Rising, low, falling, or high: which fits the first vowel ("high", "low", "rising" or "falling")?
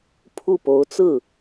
falling